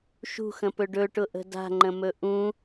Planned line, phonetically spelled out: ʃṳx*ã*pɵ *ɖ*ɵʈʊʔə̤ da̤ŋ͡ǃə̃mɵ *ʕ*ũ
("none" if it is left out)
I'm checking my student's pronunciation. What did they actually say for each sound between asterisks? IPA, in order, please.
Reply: ə̃, ɖ, ʔ

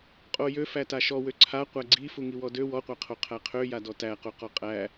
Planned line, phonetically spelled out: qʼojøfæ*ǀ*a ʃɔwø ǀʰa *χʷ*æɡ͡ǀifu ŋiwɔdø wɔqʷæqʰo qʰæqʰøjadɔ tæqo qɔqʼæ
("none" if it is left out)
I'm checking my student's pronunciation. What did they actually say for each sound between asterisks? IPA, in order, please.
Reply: t, qʷ

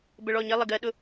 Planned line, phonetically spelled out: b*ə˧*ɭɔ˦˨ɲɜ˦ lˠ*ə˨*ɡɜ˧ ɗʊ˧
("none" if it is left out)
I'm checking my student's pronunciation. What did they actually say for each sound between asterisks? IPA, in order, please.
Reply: ə˧, ə˨

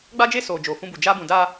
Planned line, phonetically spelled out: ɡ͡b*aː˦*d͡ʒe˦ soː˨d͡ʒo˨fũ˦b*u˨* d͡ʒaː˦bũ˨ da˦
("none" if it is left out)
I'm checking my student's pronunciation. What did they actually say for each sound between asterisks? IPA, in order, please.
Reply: a˦, u˨

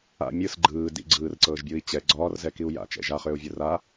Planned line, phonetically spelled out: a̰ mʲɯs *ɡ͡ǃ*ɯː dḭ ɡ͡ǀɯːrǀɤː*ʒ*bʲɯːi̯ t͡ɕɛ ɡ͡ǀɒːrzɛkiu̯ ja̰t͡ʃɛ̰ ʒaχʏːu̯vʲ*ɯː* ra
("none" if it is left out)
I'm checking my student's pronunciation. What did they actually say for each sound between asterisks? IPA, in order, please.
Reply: ɡ͡ǃ, ʒ, ɯ

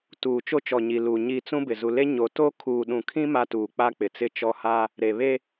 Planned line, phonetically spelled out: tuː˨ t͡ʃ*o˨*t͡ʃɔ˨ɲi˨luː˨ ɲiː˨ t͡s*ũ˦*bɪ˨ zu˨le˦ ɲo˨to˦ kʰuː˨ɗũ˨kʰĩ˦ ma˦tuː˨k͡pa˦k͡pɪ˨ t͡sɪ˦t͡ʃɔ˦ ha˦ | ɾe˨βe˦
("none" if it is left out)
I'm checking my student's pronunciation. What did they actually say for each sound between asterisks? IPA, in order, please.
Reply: o˦, ũ˦

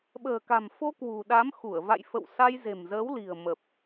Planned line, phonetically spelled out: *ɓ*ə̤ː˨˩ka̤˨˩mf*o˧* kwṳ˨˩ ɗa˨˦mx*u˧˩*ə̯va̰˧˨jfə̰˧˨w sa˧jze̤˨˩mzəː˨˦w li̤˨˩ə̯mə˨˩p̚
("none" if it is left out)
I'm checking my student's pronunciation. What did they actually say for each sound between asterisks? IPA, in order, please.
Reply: ɓ, o˧, u˧˩

